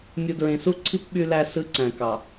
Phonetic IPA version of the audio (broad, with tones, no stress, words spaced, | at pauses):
mʲu˨dɹẽ˨su˦ǀʰi˦p ɓy˦læ˦ sɯ˦ǀæ̃˨ kɑ˨